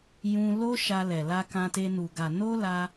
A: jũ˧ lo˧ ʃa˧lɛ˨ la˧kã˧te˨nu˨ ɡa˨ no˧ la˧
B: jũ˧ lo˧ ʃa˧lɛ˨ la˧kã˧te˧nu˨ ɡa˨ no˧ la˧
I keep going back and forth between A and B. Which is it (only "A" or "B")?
B